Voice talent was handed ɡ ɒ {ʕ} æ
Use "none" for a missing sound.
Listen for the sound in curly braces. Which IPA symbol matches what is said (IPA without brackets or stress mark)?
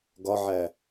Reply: ʕ